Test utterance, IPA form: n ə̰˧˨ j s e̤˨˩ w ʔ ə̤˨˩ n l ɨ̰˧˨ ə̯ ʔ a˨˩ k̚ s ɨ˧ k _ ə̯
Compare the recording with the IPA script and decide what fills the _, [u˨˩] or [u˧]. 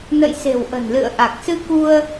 u˧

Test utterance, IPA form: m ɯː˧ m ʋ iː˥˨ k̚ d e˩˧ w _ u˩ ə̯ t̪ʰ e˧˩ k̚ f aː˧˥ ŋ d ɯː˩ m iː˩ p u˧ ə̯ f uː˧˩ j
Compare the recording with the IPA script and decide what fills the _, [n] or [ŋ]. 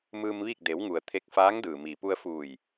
ŋ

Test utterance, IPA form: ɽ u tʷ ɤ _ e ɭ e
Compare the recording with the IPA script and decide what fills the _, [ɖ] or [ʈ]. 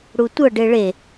ɖ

